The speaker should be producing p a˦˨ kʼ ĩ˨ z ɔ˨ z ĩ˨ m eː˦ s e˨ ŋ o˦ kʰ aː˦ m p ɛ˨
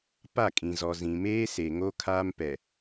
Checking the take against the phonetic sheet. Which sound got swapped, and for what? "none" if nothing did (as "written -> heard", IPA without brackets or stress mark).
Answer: none